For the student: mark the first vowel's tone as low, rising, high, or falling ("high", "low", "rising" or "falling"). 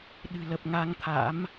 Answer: low